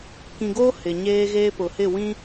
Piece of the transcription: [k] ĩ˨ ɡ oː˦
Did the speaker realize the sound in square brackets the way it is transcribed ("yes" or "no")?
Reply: yes